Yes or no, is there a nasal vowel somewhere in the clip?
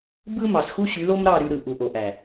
no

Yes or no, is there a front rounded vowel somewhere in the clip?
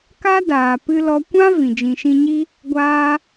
no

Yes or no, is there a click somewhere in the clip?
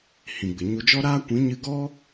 no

